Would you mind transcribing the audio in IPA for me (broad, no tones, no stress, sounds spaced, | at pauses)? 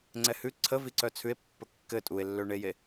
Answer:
ŋ͡ǀ ɛ h ʉ ǀʰ ə v i ǀ œ t͡sʰ ʉ e̯ pː ə kː ɘ tʼ u e̯ lː ø ɳ e j e